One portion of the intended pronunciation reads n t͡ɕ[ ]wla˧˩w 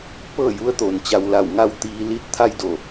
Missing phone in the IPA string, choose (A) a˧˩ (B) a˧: B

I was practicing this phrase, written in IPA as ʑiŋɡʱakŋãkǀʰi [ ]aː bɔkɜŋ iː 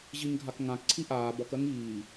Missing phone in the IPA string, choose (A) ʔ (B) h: A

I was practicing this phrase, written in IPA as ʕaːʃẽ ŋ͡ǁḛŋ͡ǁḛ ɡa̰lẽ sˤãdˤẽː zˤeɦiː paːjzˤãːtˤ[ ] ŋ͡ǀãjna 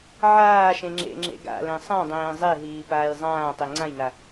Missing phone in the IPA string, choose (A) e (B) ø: A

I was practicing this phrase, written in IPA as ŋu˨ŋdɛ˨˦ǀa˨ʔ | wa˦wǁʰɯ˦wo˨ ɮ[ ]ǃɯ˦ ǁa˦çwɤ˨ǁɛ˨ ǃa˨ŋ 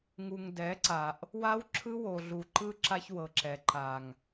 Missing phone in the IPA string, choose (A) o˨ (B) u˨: B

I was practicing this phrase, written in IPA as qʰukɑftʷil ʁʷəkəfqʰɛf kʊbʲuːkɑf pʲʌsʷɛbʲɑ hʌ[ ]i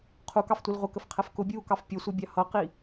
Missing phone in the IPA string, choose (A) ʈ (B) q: B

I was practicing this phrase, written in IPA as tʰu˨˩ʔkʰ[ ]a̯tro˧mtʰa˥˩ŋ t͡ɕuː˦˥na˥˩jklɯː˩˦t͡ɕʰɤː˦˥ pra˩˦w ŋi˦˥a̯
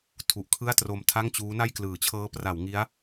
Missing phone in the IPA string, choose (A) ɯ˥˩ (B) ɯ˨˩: A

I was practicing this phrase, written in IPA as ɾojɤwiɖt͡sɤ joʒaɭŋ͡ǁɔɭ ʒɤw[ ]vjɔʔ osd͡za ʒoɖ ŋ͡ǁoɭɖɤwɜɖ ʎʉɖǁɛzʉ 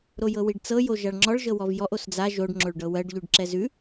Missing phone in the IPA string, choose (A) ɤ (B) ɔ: B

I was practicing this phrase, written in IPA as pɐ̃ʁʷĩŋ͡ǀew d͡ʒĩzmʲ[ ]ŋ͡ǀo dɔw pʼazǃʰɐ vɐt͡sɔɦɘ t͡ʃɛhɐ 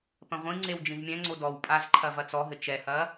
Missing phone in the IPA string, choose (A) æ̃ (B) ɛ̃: B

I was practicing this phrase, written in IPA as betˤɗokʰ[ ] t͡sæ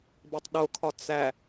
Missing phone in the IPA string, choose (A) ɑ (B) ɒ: B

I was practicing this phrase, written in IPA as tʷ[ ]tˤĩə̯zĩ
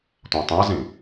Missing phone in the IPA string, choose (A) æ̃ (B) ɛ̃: A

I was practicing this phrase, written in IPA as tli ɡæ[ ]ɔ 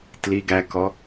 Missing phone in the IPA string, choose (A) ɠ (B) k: B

